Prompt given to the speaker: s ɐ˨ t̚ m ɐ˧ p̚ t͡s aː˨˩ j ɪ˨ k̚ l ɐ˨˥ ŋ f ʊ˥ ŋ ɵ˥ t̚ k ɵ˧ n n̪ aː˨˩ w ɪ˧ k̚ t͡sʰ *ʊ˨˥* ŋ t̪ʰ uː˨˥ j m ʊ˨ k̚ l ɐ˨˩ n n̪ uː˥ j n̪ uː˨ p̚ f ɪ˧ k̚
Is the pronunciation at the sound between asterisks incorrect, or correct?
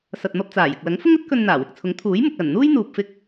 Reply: correct